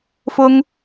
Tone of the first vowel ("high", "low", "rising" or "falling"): high